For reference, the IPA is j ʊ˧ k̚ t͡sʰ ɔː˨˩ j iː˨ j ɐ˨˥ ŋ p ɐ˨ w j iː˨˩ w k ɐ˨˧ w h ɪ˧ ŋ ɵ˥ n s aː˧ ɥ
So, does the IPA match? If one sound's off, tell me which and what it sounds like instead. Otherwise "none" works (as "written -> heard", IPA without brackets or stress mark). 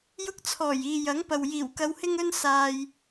ɥ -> j